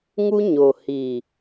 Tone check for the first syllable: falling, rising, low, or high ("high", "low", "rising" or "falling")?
high